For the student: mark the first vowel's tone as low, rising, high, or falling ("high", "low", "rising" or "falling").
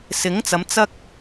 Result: rising